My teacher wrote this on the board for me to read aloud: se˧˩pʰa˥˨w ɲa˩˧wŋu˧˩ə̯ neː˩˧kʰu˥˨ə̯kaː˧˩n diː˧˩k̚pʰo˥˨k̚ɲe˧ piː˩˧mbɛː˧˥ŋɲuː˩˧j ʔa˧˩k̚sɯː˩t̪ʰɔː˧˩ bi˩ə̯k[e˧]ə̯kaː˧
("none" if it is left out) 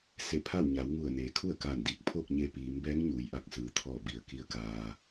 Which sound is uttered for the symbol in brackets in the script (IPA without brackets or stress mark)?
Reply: i˧